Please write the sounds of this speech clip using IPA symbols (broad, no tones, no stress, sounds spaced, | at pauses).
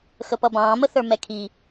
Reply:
x ə p ʌ b ɑ̃ː m ə θ ə˞ m ɛ kʰ i